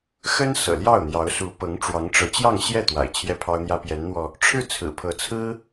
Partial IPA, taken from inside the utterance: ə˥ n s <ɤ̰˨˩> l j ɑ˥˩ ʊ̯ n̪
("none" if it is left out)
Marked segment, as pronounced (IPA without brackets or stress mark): ɤ̰˨˩